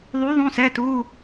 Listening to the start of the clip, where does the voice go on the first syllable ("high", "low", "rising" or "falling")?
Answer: rising